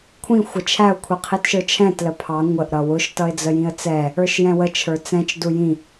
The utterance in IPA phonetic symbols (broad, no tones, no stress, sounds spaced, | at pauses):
kʷʰ ĩ xʷ ə t͡ʃʰ æ ʊ̯ kʷʰ i qʰ i t ʃ ə˞ t͡ʃʰ ɛ̃ t l ə pʰ ɑ ŋʷ ə ʔ ɾ ʌ w ʊ ʃ t ʌ ɪ̯ d͡z ə j ĩ ə̯ t͡s ɛ | ə˞ ʃ j ɛ̃ w ə t͡ʃʰ ə˞ t͡s ɛ̃ t͡ʃ d u j ĩ